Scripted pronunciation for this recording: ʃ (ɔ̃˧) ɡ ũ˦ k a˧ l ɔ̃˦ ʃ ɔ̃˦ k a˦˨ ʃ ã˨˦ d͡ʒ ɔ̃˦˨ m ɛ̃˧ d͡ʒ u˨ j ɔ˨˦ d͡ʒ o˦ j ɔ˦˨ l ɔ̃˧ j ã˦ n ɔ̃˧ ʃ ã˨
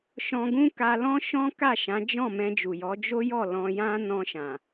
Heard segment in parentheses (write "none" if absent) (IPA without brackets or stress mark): ɔ̃˧